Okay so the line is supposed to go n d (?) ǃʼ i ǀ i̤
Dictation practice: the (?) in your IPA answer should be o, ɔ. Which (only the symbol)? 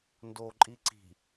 o